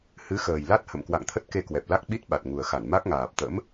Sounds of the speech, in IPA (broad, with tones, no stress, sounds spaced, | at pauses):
h ɨ˨˦ x əː˨˩ j l a˦˥ t̚ h ə̰˧˨ m k w a̰˧˨ ŋ t̪ʰ ə˦˥ t̚ k e˧ k w ɛ˨˩ p̚ l a˦˥ k̚ ɓ i˦˥ t̚ ɓ a˨˩ t̚ ŋ u˨˩ ə̯ x a˧˩ n m a˦˥ k̚ ŋ aː˨˩ p̚ t̪ ə̰˧˥ m